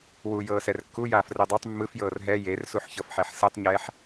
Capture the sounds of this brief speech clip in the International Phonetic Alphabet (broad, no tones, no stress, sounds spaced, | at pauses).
w u j ɤː s ɛ r kː u j aː f r ɯ dˤ u tˤ mː ɯ f j ɤː r ɦ ɛ j e r s u ħ ç ɤ f ħ ɛ ħ s ɯ tˤ ɲ ɛː ħ